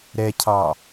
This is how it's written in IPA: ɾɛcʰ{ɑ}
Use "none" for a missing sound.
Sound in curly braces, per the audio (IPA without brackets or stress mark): ɑ